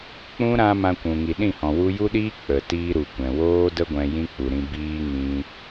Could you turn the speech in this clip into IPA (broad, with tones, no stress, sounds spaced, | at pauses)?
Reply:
k͡p ũ˦ ɾ ã˦ m ã˧ kʷ ũ˨ ŋ i˨ ɗ ĩ˦˨ h ɔ̃˨ w u˧ j u˦ ɗ iː˦ k͡p ə˨ t iː˦ ɾ u˨ kʷ ɛ̃˨ w oː˦ d ə˦ ɡʷ ɛ̃˧ j ĩ˦ k͡p u˨ ɾ ĩ˧ b iː˦ ŋ ĩ˧